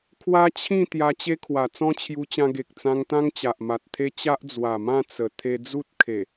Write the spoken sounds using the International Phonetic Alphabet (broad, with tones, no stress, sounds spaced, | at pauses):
kʰ w a˦ t͡ɕʰ ĩ˥˧ t̪ j a˧ t͡ɕ e˦ kʰ w a˨˩ t͡s ɔ̃˦ t͡ɕʰ j u˧ t͡ɕ ã˧ ɡ e˨ k̚ t͡s ã˧ ŋ t̪ ã˦ ŋ t͡ɕ a˨ ʔ m a˨ t̚ t̪ʰ e˦ t͡ɕ a˦ ʔ d͡z w a˨˩ m ã˥˧ t͡s ə˨˩ t̪ʰ e˧ d͡z u˦ t̚ kʰ e˨˩